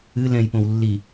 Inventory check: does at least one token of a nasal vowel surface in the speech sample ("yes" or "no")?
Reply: yes